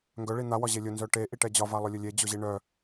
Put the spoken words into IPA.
ŋɡœ ɭin̪a wɒʑelʲʊ nzœʈe ʔiʈɛd͡ʑɒ valˠʊlʲʊlʲe d͡ʑʊʑiɳœ

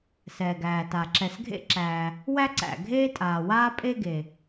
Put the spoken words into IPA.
sɛː˩ɡæː˩ta˩ ǁɛ˩sɡʱḛ˥ǁæː˩ | wæ˥ǀæ̰˩ɡʱeː˥ tʼaː˩waː˥ pʼe˥ɡe˩

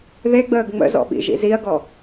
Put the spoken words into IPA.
ðeɡ͡bəːɡ ŋ͡mə̰zɔ̰ɓḭ ʒḭziɐ̯ɡɔ

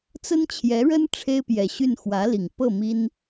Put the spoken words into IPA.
t͡sə˥nt͡ɕʰjɛ˧˥ɻə˥n ʈ͡ʂʰe˥ɪ̯pjɛ˨˩ɕy˥˩n xwä˧˥li˨˩ŋpɤ˥˩ mi˥n

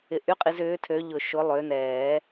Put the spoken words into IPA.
ɪ˨˦ʔy˧˥˧qʼi˨˦z ʏː˨˦tʰø˨˦ʎʊ˨˩˦ʃʊ˨˦ lˠø˨˦nɛː˨˩˦

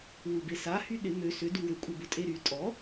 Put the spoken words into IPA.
wubesa hyɗɪ mø sʏ duwʏ kʷʼɪbʊtʼeɾy tʼɔ

